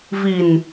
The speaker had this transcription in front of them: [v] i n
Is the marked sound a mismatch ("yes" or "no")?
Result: no